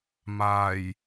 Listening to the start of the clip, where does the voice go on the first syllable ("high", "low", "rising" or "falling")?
low